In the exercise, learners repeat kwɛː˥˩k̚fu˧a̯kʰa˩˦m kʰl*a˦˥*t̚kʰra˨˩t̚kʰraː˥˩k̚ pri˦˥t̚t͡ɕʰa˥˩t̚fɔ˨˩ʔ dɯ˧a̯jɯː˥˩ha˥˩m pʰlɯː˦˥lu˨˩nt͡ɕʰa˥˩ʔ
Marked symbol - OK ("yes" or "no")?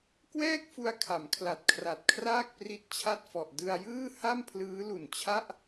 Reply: no